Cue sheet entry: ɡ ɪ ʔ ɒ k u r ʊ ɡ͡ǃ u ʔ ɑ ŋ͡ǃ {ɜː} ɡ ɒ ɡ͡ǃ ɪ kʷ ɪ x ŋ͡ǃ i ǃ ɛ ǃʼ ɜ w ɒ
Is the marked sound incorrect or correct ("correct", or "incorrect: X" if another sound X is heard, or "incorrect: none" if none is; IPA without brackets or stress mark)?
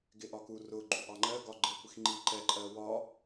incorrect: ɜ